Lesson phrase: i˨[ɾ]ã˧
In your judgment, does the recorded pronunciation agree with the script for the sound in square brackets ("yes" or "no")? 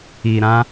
yes